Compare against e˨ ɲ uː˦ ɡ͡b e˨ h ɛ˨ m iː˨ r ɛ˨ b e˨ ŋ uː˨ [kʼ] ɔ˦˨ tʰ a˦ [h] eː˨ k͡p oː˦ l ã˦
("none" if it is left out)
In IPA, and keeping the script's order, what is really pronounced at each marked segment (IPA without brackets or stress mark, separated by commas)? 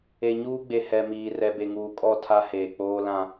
kʼ, h